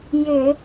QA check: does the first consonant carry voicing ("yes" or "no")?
yes